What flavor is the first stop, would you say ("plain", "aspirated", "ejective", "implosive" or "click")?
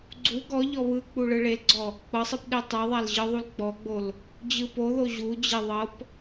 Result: click